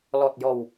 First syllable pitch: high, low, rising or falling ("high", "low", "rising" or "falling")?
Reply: low